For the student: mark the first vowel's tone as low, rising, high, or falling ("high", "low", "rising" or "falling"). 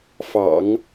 low